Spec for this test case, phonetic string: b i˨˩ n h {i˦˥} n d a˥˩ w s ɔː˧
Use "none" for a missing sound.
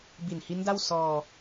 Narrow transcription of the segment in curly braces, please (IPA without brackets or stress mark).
i˦˥